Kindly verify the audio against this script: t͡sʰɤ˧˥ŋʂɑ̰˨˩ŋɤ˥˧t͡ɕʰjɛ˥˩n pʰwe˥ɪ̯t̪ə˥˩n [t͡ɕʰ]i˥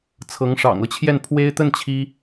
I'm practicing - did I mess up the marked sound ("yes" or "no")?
no